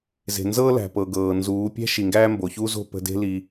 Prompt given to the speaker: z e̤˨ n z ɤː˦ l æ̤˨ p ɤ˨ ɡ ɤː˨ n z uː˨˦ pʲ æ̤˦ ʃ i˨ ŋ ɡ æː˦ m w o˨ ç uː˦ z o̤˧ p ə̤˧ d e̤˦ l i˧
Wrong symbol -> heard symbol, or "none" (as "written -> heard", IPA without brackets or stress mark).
w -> b